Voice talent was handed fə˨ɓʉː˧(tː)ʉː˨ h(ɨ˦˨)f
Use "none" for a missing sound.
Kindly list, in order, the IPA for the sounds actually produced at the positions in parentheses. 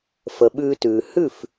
t, ʉ˦˨

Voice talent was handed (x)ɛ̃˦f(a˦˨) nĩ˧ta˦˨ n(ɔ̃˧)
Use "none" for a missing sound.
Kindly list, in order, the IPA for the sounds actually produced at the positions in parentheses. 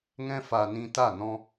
ŋ, a˧, ɔ̃˧

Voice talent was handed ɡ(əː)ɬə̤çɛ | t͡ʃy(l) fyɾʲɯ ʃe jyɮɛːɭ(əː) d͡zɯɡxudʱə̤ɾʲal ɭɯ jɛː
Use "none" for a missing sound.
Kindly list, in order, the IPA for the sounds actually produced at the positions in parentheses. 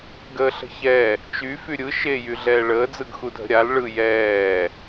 əː, none, əː

